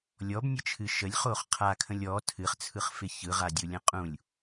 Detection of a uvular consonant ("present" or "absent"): present